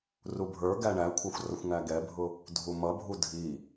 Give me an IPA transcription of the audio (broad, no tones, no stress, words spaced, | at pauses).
rubʱə˞ɡæ ɳækʷʰɑxʷ rʌxʷŋæɡɛbʱʊ | dʱumʌbʱu dʱi